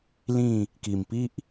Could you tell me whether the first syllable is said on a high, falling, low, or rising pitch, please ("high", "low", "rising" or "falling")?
falling